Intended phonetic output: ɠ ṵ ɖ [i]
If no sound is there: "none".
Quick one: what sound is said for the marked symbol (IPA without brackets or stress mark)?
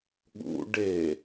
e